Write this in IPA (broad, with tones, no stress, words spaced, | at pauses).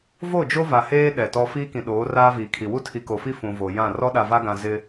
vo˦˨d͡ʒo˦va˨heː˦ ɗɛ˨tɔ˦ fiː˦kĩ˨ ɗoː˨˦raː˦viː˨kʰi˨ wu˦tʰi˨ko˨fi˦ fũ˨vo˨jã˦˨ rɔ˦ɗa˨va˦ɡã˨ zɪ˦